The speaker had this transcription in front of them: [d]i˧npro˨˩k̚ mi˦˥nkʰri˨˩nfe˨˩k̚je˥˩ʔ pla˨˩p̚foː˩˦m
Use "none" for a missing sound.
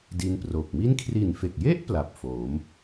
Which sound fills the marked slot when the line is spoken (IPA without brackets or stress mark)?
d